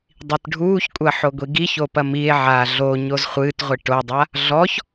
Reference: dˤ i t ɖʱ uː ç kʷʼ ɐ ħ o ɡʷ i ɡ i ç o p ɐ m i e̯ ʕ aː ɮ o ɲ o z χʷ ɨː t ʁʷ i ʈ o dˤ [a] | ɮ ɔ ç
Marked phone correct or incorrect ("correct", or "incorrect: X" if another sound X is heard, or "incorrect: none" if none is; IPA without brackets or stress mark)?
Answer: correct